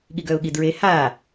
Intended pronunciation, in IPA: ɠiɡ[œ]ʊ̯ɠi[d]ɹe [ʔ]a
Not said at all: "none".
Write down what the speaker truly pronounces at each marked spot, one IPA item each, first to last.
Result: œ, d, h

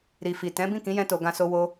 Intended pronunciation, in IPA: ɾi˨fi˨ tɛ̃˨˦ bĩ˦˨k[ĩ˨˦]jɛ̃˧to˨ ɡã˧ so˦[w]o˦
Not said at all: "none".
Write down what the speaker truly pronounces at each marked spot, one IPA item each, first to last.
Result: ĩ˨˦, w

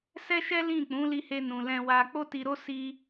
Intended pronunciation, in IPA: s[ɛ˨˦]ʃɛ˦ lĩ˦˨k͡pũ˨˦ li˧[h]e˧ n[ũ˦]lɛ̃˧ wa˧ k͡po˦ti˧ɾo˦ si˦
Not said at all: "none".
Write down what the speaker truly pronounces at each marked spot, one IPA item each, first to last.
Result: ɛ˦, h, ũ˨

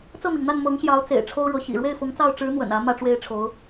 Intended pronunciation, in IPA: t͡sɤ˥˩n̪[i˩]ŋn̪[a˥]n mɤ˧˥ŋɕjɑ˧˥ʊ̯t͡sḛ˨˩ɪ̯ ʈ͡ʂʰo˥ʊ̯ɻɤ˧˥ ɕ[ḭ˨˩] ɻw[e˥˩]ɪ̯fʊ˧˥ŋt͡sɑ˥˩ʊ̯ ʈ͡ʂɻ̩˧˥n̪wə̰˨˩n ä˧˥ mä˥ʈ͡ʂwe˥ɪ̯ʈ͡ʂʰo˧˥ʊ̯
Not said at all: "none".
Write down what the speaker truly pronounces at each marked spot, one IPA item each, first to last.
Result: i˩, a˥˩, ḭ˨˩, e˥˩

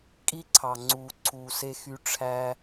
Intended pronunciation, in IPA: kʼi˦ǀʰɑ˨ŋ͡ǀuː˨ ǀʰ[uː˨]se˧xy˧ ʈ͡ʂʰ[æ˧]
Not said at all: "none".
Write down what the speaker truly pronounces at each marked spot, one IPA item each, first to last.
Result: uː˨, æ˧

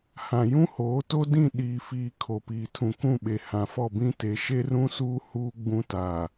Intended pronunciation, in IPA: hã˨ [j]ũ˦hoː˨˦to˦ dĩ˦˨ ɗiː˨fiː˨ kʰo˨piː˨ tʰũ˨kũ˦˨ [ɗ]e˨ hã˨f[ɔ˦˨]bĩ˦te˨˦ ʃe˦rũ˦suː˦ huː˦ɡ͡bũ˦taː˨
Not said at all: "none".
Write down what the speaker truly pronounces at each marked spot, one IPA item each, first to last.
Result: j, ɓ, ɔ˦˨

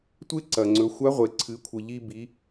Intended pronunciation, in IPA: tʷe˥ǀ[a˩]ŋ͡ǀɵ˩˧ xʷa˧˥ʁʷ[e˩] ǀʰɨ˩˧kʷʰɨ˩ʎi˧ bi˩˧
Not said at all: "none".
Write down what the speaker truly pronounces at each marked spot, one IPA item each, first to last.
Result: ɐ˩, e˩

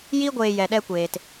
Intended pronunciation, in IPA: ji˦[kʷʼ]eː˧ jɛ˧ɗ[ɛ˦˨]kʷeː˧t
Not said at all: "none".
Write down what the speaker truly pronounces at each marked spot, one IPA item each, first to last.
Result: ɡʷ, ɛ˦

